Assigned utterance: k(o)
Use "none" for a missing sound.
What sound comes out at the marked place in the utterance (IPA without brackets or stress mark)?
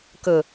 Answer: ɵ